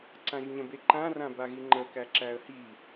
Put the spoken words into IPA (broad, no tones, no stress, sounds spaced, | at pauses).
ǀ ã ʒ ɲ ə̃ b e ǃ ã r ã b a ɣ i ŋ͡ǃ ə k æ ǁ æ ə̯ h i